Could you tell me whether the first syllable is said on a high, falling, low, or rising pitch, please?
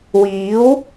rising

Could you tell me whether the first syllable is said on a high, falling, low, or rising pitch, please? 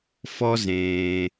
high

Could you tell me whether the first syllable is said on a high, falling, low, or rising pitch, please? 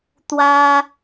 high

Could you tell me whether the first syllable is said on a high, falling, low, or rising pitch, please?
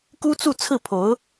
high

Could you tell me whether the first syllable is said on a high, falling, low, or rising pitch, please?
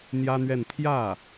high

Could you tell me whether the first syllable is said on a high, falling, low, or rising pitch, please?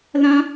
high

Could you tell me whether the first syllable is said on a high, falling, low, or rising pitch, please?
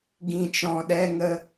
low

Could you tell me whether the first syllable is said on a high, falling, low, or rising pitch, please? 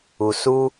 low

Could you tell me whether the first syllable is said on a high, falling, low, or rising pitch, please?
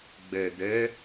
low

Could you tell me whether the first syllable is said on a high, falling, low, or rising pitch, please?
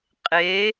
rising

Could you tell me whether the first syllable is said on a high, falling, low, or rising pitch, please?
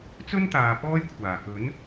high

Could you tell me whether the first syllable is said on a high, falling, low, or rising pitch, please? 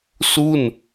falling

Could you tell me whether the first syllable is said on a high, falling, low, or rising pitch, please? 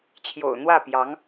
low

